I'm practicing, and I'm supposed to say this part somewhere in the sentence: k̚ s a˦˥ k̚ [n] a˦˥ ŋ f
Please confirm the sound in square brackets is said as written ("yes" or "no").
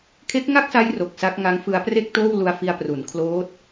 no